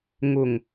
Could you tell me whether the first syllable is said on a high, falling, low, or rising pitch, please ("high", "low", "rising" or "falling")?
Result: low